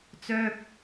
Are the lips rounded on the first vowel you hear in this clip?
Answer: yes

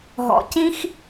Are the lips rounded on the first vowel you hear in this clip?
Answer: yes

